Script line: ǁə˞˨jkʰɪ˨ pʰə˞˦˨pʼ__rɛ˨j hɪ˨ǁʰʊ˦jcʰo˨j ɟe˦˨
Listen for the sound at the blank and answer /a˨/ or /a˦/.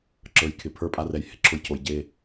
a˦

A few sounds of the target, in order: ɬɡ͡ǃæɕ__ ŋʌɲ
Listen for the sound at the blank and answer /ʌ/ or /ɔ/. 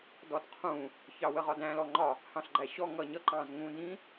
ɔ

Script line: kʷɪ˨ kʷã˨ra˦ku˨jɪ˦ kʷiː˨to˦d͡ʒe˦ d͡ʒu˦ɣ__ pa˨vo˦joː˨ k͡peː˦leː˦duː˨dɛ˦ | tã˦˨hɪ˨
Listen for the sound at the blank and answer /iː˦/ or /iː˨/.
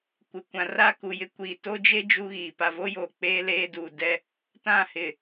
iː˨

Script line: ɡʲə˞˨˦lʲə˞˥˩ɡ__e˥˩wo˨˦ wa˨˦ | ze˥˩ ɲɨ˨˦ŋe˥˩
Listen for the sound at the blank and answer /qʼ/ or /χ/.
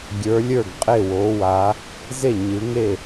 qʼ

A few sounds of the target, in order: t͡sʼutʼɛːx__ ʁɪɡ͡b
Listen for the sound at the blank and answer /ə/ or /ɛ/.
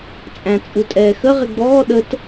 ə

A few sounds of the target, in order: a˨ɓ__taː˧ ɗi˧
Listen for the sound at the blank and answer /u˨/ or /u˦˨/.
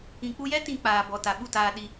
u˦˨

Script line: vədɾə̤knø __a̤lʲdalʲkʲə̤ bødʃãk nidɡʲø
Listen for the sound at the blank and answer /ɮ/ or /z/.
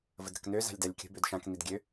z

